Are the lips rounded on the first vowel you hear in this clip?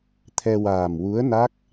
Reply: no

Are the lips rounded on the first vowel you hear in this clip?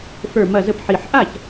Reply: no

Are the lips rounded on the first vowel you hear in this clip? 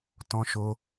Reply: yes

